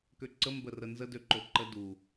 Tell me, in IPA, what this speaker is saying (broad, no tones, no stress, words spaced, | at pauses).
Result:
køǀə mbərənzə døǃoǃə du